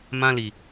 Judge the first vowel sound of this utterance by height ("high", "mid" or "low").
low